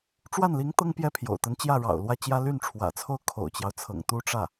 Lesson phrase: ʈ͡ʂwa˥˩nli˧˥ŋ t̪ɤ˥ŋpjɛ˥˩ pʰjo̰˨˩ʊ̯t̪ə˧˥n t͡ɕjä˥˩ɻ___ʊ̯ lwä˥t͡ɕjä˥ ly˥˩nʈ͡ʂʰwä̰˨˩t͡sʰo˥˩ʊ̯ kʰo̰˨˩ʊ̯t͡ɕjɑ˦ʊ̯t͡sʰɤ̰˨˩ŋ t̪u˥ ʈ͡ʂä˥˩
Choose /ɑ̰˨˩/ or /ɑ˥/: ɑ̰˨˩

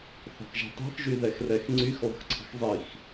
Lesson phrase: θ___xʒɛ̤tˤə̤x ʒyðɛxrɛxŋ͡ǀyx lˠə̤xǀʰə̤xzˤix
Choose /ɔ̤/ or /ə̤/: ɔ̤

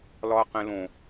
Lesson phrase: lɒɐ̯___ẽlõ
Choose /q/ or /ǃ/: q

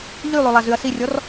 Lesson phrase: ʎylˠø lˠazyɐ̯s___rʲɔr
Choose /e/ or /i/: i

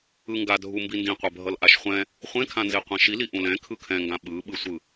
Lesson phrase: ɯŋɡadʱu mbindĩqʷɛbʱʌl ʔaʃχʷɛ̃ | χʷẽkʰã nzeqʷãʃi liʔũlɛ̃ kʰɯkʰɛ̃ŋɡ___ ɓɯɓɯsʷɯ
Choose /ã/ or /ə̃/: ã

